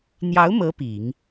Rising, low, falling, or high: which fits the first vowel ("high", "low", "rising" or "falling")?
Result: rising